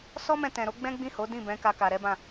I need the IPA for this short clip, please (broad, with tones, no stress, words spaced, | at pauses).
sɔ˦mɛ̃˧tɛ̃˨ɾo˨˦ ɡ͡bɛ̃˦ɡ͡bĩ˦˨ho˨˦dĩ˦˨ bɛ̃˨˦ka˧ ka˨ɾɛ˨˦ bã˦˨